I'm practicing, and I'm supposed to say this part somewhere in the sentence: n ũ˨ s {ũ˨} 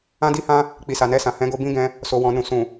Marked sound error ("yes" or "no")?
no